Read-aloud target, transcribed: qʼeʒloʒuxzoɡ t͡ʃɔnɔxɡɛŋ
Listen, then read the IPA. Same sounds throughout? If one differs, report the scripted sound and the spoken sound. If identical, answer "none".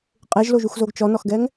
none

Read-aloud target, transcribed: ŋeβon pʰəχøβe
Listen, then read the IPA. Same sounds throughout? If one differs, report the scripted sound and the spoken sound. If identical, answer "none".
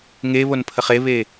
ø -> e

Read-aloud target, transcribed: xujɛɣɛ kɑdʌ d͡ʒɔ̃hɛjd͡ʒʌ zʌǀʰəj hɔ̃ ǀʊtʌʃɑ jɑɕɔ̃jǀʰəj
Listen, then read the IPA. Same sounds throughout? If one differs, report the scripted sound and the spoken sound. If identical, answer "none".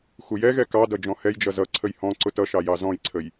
ɕ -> z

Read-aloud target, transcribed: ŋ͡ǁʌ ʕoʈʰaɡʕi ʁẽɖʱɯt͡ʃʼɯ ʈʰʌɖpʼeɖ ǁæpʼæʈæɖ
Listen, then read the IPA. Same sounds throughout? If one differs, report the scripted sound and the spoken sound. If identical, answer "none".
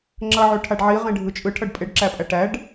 ɡ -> ɖ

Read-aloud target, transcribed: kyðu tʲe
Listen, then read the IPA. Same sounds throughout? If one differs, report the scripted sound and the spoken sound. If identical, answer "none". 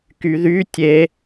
u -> y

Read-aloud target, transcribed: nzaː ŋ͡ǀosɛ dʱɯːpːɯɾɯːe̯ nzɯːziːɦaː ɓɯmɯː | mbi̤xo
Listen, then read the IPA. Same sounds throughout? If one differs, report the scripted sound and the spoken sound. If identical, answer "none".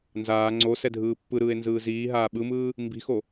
none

